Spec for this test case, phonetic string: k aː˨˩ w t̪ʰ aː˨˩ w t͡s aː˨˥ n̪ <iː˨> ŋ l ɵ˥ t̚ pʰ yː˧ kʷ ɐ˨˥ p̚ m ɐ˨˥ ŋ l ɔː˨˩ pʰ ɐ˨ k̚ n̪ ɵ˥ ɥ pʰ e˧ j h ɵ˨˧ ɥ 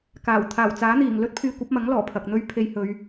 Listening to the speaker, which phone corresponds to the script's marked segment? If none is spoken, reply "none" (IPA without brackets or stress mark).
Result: iː˨˩